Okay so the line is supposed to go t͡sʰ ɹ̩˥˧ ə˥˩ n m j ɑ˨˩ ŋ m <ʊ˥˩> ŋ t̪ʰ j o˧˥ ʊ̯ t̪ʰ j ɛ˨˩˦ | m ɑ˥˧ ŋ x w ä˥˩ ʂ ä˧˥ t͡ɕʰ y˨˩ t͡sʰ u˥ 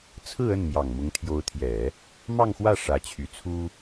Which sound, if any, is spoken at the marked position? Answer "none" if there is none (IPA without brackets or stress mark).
ʊ˧˥